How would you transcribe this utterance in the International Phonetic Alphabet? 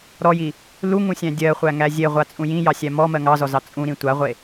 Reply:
ɾɔji | luŋũsʲæ̃ dʲɜχʷæŋæ zʲeʁʷat͡sʼũ jĩjɑsʲæ mɔmɜ ŋɑzɔzɑ t͡sʼũɾĩ tʷaʁʷe

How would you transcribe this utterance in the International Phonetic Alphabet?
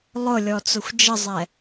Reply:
lˠʊ lʲɔt͡sʊxʷd͡ʒəzˤɛ

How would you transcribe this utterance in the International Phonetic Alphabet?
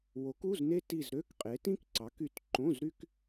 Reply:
wo˨˥ku˧˥˧zne˥ ti˦˨zɾø˧˥˧kqʼe˨˥ tĩ˥kǀɑ˨˥ky˦˨t ǃõ˧˥˧zɾy˥k

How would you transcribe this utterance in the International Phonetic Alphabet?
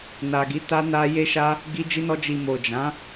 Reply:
na˨ɡi˨˦ ta˧ na˧je˦ʃa˦ | ɡi˧d͡ʒi˧nɔ˧ d͡ʒi˨mo˨ d͡ʒã˨˦

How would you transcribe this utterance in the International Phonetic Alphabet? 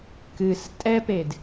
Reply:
kɨs tʼɛped

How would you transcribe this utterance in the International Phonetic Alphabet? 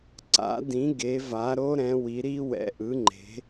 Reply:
ǀa̰˨˦dĩ˨˦ ɡe˨˦va˨˦ɾo˦˥ ɾɛ̃˨˦wi˨˦ɾi˦˥ wɛ̰˨˦ʔɯ˨˦ŋ͡ǃe̤˨˦

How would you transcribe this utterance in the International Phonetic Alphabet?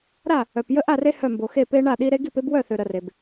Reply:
ɾa˥˨ | œ˨p jə˦ʔa˥˨re˦ hœ˥˨mbo˨xe˥˨ pe˦ɳa˥˨ɗi˦ ɾe˦ɡi˥˨pe˦b wœ˥˨θø˨ ɾə˨re˨b

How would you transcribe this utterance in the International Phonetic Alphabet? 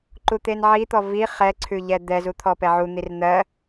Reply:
ǃut̪enʕit̪ɔ vi χɛǀʰʉ ʎɛd̪ɛzu t̪ʰɔpɛʕun̪ir n̪ɜ

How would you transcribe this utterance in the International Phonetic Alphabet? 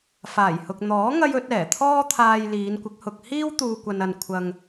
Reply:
faː˨˩jhʊ˨k̚ n̪ɔː˨˥ ŋɐ˥jɵ˨˥t̚ ɛː˨˩t̪ʰɔː˥t̪ʰaː˧j liː˨˧nkʷɪ˨˥k̚hʊ˧k̚ hiː˥w t̪uː˧ kʷɐ˧nɐ˧n kʷʰɐ˧ŋ

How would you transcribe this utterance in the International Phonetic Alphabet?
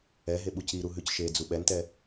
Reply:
ɛɦe ɓuciɾu ɦʉcʃed͡zu ɓɛntɛ

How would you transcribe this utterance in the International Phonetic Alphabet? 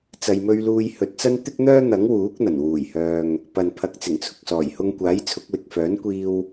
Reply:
t͡sɐ˨jmɵ˧ɥluː˧j hɵ˨t̚t͡sɐ˥nt̪ɪ˥k̚n̪œː˥ n̪ɐ˨˥ŋwuː˨˥k̚n̪ɐ˨˩n wuː˨˩jhœː˨ŋ | pɐ˨n pʰɐ˨˥k̚t͡sɪ˨˩ŋt͡sʰʊ˨k̚ sɔː˨˩jhʊ˧ŋkʷaː˨˥j t͡sʰʊ˨˥k̚wɪ˨k̚ fœː˨˥nkʷiː˧w

